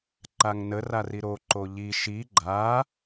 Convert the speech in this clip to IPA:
ǃ a ŋ n ə r a r i ɾ o ǃ o ʎ i ʃ i ɡ͡ǃ a

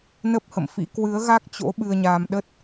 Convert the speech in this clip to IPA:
n ə˦˥ p̚ h ə̰˧˨ m f ḭ˧˥ k w ɨ˨˦ ə̯ ɣ a˦˥ k̚ t͡ɕ o̰˧˥ ɓ ɨ˧ ə̯ ɲ aː˧ m ɗ ə˦˥ t̚

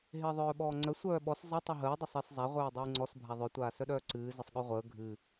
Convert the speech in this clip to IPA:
ɦ ɪː ðˤ œː ɓ ɔː ŋ͡ǀ ə sʷ œː ɓ ɔ s zˤ ɪ tˤ ɨ ɦ əː dˤ ɪ sˤ ɪː s zˤ a ʁʷ œː dˤ ɨː ŋ͡ǀ ɔ s bʱ a ðˤ œ tʷ aː s œ ɗ œː ǀ ɨː z ə sˤ ɠ œ ʁʷ əː ɡʱ ɨ

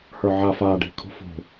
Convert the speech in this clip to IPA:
h ə˞ ʕ a f a ɖ i̤ kʰ ṳ f ṳ

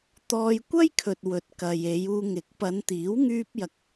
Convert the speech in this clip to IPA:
t̪ ɔː˧ j kʷ ɐ˥ j kʰ ɵ˨ t̚ w ɵ˨ t̚ k ɐ˨ j e˨˧ j uː˧ ŋ ɪ˨˥ k̚ p ɐ˨˧ n t̪ iː˨˥ w ŋ yː˧ p̚ j ɐ˨ k̚

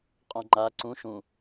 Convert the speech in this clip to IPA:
qʼ õ ŋ͡ǃ a ǀ ũ ʃ ũ

